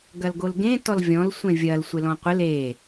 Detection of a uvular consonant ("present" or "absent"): present